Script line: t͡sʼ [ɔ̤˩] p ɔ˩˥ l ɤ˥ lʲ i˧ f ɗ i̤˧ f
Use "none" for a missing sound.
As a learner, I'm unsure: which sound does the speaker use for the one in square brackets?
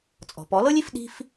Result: ɔ̤˩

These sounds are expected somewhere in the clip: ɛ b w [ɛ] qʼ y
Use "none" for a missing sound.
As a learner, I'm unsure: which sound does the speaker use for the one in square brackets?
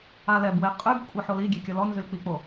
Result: e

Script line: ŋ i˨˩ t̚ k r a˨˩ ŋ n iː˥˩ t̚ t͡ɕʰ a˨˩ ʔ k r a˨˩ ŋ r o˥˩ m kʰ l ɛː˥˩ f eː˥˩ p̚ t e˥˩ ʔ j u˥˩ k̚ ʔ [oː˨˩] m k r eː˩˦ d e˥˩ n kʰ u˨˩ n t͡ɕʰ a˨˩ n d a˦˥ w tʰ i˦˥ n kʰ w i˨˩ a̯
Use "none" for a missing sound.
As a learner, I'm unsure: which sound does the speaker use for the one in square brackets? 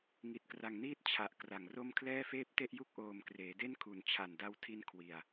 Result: oː˨˩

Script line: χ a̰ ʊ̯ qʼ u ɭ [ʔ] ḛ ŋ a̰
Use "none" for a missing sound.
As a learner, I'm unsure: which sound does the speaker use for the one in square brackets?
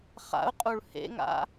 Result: h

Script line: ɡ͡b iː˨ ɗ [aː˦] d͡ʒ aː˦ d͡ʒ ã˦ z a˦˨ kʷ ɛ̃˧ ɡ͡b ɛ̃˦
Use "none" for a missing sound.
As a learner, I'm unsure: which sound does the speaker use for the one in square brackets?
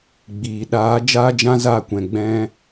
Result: aː˨˦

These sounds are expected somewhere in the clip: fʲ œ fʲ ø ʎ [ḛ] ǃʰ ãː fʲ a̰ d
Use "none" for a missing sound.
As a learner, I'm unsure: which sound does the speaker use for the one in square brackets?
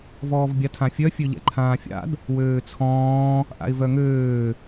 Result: ɛ̰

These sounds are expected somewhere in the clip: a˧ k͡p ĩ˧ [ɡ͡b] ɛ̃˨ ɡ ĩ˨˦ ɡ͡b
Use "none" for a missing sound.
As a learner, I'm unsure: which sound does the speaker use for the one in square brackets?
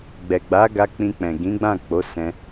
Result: k͡p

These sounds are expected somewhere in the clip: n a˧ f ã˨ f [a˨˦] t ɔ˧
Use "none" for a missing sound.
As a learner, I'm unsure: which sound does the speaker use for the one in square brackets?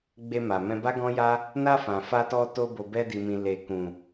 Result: a˧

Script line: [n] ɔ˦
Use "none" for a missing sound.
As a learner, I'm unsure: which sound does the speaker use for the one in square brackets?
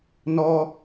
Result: n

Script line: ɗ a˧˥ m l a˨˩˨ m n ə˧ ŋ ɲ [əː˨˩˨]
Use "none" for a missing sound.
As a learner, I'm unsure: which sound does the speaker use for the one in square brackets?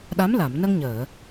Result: əː˨˩˨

